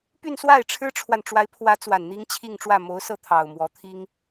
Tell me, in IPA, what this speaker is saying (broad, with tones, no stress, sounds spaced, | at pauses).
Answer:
p y˥˧ n s w a˥˩ ɪ̯ ʈ͡ʂʰ ɻ̩˥ ʈ͡ʂʰ w a˨ n ʈ͡ʂ w a˧˥ ɪ̯ pʰ w ä˧˥ t͡s w a˨˩ n n̪ i˥ ŋ t͡ɕʰ i˥˧ ŋ ʈ͡ʂ w ä˥˩ m o˧˥ ʊ̯ s ɤ˥˩ t̪ʰ ɑ˨˩ ʊ̯ m w ɔ˧˥ t̪ʰ i˥ ŋ